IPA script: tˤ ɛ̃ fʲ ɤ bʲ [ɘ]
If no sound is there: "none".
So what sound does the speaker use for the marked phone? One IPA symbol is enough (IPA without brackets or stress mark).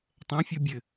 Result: ɘ